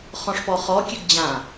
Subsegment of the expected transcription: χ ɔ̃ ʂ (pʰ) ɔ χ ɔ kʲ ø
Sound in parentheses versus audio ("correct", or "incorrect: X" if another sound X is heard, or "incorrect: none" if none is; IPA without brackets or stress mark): incorrect: p